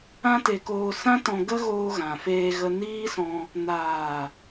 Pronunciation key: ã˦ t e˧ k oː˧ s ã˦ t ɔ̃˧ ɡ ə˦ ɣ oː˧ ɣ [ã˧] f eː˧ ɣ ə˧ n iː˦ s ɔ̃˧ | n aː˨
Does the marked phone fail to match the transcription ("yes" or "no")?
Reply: yes